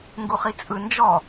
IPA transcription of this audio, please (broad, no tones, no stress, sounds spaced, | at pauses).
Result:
ŋ ɡ u χ i t͡sʼ ɯ n d͡ʒ ɔ